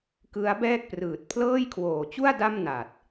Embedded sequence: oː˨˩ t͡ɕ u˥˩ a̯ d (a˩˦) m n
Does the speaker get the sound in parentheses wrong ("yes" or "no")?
yes